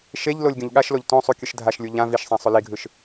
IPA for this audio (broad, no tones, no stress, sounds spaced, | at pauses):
ʃ e ʎ l o lʲ ɡʲ õ ʎ ɠ a ʃ l o ʎ t õ sˤ u kʲ ɯ ʃ dʱ a ʃ lʲ u ʎ ã v i ʃ sˤ ã sˤ o l i ɡʱ ɯ ʃ